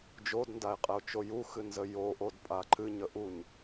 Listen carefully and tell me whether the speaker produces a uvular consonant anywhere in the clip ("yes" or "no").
yes